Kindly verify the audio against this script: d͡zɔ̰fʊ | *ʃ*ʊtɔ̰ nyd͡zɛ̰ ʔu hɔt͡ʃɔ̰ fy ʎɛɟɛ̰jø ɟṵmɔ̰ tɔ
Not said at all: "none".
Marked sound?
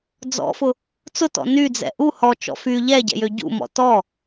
t͡s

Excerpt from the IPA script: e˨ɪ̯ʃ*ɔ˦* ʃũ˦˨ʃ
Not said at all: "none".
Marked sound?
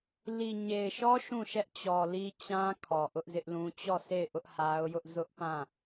ɔ˦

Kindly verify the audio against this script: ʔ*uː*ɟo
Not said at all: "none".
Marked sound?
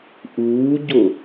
uː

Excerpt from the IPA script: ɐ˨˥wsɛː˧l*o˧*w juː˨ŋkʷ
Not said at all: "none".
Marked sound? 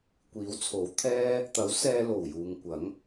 o˨˩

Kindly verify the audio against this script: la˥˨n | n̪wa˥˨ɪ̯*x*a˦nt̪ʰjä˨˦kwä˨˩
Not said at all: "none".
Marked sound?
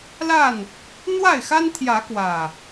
x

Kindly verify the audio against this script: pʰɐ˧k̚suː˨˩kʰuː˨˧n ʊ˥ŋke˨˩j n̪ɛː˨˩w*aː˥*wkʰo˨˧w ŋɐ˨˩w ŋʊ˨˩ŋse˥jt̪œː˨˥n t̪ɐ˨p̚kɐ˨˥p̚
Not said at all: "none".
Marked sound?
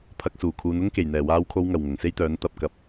aː˨˧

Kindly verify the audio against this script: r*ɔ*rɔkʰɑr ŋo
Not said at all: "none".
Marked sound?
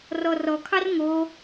ɔ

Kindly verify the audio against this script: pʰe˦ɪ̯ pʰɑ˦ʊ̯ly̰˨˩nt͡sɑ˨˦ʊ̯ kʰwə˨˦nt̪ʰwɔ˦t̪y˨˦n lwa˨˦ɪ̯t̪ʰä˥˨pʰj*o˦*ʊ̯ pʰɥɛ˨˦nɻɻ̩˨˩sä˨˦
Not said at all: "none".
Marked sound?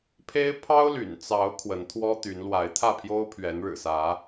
o˦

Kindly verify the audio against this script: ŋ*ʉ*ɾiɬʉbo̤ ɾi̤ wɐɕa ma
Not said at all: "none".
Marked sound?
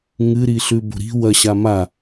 ɨ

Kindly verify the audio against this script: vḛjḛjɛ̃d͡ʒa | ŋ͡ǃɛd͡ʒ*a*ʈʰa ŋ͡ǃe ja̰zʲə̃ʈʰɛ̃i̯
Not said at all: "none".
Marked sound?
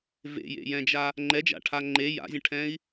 a̰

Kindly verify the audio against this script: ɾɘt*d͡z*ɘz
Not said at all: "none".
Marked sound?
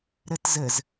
z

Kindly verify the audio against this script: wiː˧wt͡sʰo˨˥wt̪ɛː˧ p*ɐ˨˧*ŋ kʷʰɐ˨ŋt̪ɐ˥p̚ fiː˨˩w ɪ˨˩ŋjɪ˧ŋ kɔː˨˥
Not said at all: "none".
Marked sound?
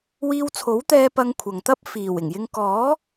ɐ˧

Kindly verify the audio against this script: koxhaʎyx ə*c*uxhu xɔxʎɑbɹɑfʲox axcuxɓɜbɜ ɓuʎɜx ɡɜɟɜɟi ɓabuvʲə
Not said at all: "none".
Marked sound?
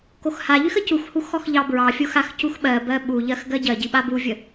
c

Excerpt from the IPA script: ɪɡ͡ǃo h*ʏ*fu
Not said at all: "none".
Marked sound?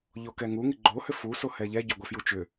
ʏ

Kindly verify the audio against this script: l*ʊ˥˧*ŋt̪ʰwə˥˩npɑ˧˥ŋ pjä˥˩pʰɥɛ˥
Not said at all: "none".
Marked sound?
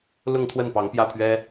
ʊ˥˧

